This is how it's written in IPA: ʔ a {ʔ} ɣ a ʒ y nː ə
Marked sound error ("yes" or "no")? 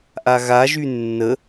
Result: yes